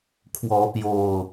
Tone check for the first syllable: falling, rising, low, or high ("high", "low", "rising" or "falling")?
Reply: rising